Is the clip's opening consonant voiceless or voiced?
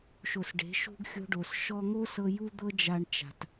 voiceless